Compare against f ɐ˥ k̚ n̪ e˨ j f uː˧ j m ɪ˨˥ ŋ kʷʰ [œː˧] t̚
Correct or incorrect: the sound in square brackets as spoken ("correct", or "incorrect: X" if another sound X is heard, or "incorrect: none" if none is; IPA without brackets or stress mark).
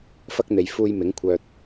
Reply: correct